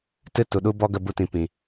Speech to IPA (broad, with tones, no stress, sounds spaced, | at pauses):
t ɨ˦ t u˨ ɗ u˦ b ɔ˦ ɡ ə˧ b u˧ t ĩ˨ p ĩ˨